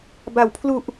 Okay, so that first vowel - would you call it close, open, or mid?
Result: open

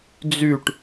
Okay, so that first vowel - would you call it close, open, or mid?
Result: close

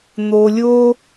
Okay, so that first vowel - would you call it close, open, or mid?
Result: mid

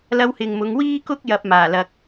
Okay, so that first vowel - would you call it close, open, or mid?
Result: open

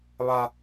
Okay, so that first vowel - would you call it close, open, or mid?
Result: open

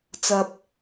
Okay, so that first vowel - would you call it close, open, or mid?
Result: open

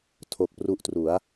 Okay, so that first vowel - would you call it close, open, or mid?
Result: mid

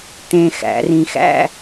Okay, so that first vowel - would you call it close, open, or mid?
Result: mid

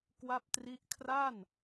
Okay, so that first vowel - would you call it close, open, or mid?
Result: open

